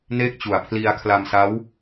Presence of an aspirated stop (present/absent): present